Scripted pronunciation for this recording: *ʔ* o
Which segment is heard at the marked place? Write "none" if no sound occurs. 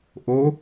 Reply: ʔ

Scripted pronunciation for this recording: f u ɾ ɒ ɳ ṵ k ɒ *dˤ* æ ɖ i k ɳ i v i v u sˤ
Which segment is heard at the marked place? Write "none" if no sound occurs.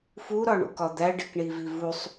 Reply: d̪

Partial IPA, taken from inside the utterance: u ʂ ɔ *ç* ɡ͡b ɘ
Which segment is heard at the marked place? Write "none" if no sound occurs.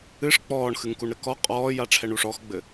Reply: x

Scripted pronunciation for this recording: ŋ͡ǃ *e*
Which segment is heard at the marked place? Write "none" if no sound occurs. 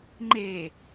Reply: e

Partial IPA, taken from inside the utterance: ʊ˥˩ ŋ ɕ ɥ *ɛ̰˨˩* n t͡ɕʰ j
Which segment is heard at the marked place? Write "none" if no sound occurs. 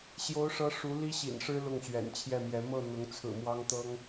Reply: ɛ̰˨˩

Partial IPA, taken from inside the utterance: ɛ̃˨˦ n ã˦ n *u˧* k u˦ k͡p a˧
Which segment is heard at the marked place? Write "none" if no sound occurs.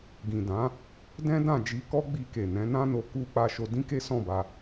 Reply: o˧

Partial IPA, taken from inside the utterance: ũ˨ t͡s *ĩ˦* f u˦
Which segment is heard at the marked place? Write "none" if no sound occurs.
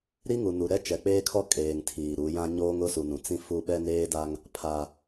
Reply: ĩ˦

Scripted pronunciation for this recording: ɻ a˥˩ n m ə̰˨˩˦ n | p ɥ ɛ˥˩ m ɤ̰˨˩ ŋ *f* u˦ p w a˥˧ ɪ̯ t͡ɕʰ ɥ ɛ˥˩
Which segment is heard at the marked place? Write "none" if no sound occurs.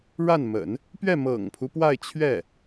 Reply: pʰ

